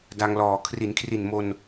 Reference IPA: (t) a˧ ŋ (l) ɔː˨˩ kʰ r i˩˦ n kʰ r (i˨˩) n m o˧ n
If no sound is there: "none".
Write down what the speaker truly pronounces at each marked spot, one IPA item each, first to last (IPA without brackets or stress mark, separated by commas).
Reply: d, l, i˨˩